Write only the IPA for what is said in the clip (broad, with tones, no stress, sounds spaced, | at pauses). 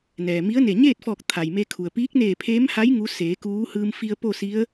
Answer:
n ɛː˩ m i˧˥ ə̯ n e˧˩ ɲ eː˥˨ t̚ f ɔː˧˩ k̚ t̪ʰ a˩ j m e˧ kʰ u˩ ə̯ p iː˧˥ k̚ n eː˧˩ pʰ eː˧˥ m h a˧˥ j ŋ u˧˥ s eː˩˧ k uː˧˥ h ɯː˧ m f i˧ ə̯ p o˥˨ s i˧˥ ə̯